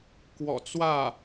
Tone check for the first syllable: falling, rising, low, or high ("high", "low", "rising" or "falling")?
low